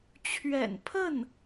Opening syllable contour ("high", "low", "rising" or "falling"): low